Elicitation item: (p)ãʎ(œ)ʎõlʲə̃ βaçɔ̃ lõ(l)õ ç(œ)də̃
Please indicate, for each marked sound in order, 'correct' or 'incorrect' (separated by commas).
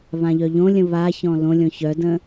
incorrect, correct, incorrect, correct